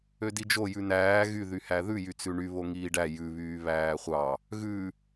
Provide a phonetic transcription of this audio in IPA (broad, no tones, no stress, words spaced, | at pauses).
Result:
ødid͡ʒo jʉnæː ɣy ðyhæðʉ jyt͡sʉɳy βoŋiːɖæ jʉβyː βæːχʷɑ | ɣʉ